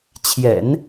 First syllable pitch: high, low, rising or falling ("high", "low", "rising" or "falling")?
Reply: low